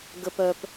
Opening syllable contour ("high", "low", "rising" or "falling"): low